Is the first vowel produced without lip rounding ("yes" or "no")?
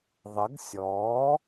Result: yes